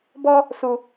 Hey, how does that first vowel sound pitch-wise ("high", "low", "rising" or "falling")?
high